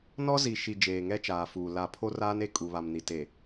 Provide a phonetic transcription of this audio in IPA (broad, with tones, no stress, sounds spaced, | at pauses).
n ɔ˦ z i˨ ʃ i˨ d͡ʒ eː˨ ŋ ɛ˦ t͡ʃ aː˨ f uː˨ l a˨ pʰ o˦ r aː˦ n e˨ kʼ u˨ β a˨ m n i˨ t e˨